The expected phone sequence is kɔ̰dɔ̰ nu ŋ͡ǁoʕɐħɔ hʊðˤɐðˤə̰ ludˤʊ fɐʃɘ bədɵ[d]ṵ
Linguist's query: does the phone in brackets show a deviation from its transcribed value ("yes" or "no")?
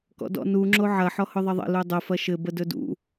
no